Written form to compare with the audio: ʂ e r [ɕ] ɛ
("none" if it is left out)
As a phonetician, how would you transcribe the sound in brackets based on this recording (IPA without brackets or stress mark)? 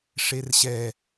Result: ɕ